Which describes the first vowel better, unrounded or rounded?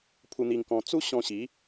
rounded